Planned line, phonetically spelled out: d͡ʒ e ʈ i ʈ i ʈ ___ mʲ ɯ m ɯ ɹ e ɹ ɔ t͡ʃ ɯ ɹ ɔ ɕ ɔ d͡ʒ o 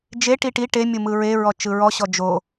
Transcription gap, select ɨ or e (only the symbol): e